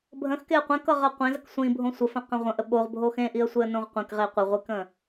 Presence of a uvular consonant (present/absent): present